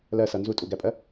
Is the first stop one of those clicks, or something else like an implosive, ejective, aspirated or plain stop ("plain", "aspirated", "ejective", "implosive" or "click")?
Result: ejective